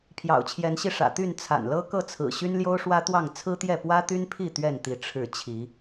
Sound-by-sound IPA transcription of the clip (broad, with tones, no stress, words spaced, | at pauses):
pʰjɑ̰˨˩ʊ̯t͡ɕʰjɛ˨˦nɕi˧ ʂä̰˨˩t̪y˥˨n t͡sʰa̰˨˩nlɤ˦kɤ˥˨t͡sʰɹ̩˨˩ ɕy˦nljo˦ʊ̯ʂwä˦t̪wɑ˥˨ŋ t͡sʰɹ̩˦t̪jɛ˥˨ pwä˦t̪y˦npʰi˥˨ t̪ɥɛ˥˨nt̪i˨˦ ʈ͡ʂʰɻ̩˥˨ t͡ɕʰi˨˦